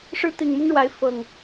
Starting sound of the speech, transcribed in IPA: ʂ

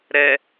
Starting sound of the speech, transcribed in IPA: ɾ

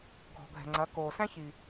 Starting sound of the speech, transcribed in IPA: ɡʱ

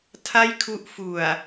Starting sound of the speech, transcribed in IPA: tʰ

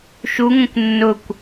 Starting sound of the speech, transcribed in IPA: ʃ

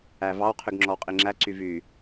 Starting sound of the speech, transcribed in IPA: æ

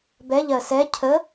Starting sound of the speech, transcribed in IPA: b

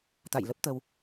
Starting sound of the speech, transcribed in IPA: t̪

